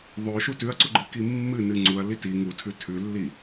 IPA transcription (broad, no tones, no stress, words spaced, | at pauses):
ðˤɵʃu tʉɐ̯ǀuɡ͡ǃɨki mːɨnɨ ŋ͡ǀuɐ̯li ti ŋutʰʉ tʰʉlːi